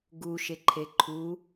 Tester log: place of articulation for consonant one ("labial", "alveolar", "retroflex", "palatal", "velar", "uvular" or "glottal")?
velar